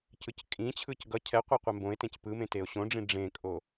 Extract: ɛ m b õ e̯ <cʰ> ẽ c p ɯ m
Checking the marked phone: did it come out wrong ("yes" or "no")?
yes